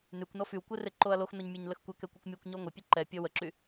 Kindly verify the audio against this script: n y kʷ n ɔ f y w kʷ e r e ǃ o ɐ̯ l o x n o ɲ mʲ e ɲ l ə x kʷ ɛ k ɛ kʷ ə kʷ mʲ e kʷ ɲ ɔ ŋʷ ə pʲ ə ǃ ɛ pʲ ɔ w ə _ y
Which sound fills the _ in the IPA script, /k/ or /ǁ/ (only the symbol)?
ǁ